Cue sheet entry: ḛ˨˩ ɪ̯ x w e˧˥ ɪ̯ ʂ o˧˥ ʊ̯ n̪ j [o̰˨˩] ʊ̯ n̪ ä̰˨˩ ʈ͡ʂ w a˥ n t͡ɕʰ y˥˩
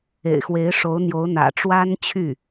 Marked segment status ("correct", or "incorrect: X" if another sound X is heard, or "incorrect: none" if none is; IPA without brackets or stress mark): incorrect: o˧˥